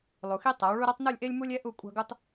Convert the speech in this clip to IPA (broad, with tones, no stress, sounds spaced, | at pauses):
lˠ u˨ x i˦ tˤ a˨˦ w ɭ u˦ ɾ a˦ tˤ n u˦˨ lʲ ʔ e˦ lʲ m u˦ lʲ ɛ˦ ʔ u˦˨ kʷʼ ɑ̤˦ ɡ u˦ tˤ